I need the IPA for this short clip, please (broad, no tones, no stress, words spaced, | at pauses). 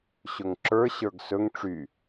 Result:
ɕɵŋǁə˞ ɕə˞ɡsɵŋ ʈ͡ʂy